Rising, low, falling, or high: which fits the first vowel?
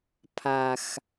low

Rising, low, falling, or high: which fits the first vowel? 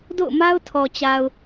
falling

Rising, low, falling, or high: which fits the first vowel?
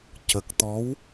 low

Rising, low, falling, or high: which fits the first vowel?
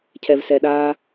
low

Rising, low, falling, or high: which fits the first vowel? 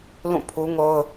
falling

